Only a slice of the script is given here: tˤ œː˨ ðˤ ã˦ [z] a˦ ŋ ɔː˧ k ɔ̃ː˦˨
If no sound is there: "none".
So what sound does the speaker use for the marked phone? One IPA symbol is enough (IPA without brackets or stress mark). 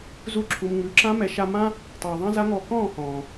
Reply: z